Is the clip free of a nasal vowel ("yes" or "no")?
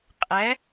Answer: yes